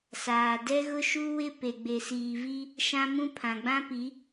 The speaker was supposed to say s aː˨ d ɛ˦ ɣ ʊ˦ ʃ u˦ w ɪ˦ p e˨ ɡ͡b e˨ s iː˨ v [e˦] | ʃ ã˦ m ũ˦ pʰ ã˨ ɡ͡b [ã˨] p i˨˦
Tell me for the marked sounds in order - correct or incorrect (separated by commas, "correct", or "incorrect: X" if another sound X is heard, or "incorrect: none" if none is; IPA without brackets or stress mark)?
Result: incorrect: i˦, incorrect: ã˦